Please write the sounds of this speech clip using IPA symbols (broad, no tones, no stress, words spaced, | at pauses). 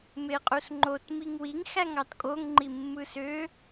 meqʼusŋ͡ǃot miŋwiŋ xæŋɑtkʼoŋ ŋ͡ǃimːɯsø